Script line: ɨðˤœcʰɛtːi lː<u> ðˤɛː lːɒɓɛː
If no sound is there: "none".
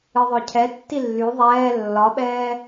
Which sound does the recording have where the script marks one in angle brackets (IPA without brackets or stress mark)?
y